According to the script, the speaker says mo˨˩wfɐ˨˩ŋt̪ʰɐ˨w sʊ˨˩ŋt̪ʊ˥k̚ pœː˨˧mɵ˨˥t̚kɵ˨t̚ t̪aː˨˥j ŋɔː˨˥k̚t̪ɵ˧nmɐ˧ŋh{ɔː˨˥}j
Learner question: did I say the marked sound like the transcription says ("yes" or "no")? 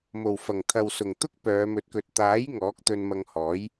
yes